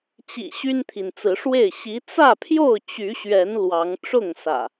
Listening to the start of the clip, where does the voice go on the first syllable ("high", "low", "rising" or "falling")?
low